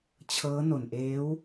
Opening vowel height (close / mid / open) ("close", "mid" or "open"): mid